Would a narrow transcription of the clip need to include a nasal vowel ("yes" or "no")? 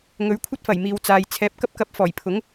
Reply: no